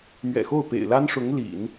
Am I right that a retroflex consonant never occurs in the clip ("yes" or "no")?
no